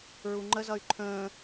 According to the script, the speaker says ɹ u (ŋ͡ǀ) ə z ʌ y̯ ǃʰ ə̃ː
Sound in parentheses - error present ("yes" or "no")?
yes